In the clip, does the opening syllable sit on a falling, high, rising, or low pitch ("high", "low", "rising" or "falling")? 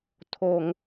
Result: high